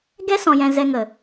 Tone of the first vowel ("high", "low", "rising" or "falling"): high